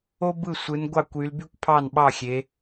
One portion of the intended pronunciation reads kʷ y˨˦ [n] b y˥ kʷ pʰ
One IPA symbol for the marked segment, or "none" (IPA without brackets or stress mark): l